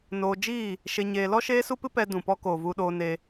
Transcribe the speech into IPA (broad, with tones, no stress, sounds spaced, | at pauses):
n oː˧ d͡ʒ iː˦˨ | ʃ e˧ ɲ eː˧ l ɔ˦ ʃ eː˦ s u˦ p ɨ˦ p ɛ˦ d ũ˨ p ɔ˦ k oː˨ v u˧ ɗ oː˧ n e˧